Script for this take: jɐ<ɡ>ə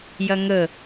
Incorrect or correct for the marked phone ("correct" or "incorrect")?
incorrect